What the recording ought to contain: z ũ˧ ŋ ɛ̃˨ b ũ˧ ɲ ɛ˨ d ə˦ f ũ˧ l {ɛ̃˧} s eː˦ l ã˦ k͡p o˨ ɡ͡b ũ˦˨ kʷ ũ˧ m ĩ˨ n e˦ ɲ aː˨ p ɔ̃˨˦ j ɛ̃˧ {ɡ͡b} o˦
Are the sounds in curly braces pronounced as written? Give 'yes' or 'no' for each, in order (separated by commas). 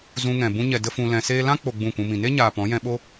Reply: yes, no